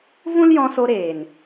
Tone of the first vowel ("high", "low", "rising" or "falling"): high